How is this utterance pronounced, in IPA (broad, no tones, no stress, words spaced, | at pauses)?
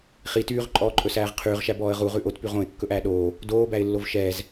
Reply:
χi tyːʁǃʼɔːǃʼɵsæːʁ qʰyːʁʃæbɔːə̯ ʁuʁʉ ʔotpyʁ õɪ̯kːɵʔæː ɗoː | doːbæɪ̯lːov ʃɛːz